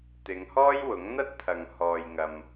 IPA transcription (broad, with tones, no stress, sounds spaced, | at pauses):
t̪ ɪ˨˧ ŋ h ɔː˥ j w ʊ˨˥ ŋ n̪ ɐ˥ t̚ t̪ʰ ɐ˨ ŋ h ɔː˨ j ŋ ɐ˨ m